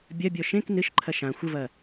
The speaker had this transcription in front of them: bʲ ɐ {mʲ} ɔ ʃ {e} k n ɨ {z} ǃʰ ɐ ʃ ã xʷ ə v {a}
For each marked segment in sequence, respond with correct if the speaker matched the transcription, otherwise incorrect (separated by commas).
incorrect, incorrect, incorrect, incorrect